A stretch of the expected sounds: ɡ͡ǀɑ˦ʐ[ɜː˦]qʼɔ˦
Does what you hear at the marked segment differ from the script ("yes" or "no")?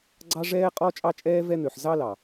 yes